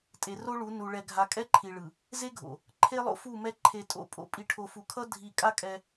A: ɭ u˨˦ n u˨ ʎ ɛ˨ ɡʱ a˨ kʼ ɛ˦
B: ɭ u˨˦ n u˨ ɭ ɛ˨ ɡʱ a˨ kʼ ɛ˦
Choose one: B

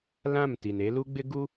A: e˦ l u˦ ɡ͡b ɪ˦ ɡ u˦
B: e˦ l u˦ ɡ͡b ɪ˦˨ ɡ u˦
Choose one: A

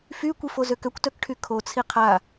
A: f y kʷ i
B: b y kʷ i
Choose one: A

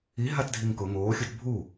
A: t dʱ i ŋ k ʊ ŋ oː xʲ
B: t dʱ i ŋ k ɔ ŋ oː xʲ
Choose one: A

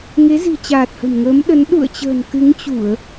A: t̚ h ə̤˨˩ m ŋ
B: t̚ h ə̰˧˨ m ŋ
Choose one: A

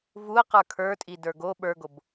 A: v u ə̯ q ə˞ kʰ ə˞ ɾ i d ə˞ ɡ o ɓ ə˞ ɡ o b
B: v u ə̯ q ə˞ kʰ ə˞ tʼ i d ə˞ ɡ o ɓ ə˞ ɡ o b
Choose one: B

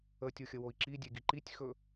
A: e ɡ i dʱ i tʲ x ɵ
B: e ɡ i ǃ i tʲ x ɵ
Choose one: B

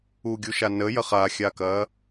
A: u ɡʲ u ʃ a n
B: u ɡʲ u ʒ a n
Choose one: A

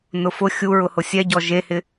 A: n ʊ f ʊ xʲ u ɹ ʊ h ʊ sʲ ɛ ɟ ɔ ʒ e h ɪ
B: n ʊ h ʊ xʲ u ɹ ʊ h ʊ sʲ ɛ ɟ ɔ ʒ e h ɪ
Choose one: A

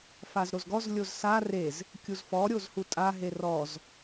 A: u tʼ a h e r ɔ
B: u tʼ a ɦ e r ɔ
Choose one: B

